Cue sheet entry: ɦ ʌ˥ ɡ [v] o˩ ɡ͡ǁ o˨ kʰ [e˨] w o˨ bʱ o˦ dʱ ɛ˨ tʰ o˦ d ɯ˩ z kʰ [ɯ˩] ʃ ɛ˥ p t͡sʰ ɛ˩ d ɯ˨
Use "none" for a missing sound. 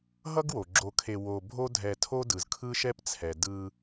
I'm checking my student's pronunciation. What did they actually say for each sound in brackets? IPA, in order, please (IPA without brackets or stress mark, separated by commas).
w, e˨, ɯ˥